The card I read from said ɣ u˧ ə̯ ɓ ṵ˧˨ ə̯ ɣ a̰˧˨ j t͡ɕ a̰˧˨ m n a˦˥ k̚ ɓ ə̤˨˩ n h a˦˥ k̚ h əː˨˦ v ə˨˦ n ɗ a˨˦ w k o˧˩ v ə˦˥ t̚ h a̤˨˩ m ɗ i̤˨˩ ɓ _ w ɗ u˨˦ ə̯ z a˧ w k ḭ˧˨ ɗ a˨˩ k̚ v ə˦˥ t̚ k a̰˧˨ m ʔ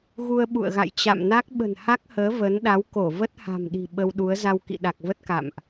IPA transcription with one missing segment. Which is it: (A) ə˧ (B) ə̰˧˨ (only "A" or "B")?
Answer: A